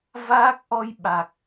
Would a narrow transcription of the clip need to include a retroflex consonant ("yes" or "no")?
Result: no